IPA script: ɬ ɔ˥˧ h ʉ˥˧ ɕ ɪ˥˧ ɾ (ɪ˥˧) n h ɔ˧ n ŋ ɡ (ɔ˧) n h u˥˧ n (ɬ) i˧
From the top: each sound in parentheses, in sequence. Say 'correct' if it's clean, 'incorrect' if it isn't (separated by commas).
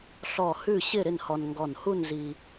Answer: correct, incorrect, incorrect